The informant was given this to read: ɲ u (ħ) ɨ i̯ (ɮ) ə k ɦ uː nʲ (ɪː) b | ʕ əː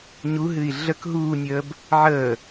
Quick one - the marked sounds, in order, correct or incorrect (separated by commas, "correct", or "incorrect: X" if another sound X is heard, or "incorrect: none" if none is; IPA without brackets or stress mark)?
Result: incorrect: ɦ, correct, incorrect: əː